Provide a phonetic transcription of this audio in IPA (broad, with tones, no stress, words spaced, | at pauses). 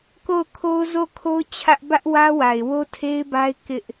ko˦˨ʊ̯kʰo˦ʊ̯ zo˦˨kʰo˦ʊ̯ t͡ɕʰä˦ʔ bä˦ʔwä˦wa˨ɪ̯ wo˦tʰe˦ɪ̯ba˦ɪ̯ kɪ˦ʔ